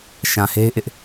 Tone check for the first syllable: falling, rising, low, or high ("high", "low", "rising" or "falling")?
low